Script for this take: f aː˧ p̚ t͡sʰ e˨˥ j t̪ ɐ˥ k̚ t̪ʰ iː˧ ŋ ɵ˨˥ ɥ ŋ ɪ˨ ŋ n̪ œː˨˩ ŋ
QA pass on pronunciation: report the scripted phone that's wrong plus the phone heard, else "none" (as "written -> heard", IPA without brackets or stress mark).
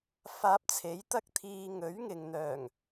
none